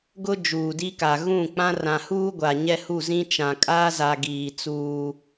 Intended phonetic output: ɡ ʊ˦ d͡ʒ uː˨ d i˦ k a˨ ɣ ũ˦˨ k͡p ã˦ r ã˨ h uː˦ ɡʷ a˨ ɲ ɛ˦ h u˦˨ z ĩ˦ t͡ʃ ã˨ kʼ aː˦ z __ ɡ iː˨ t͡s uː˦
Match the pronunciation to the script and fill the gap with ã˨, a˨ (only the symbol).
a˨